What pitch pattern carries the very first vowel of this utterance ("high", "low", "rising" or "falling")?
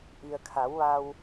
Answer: low